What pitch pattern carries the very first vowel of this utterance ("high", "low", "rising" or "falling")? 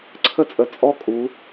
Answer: high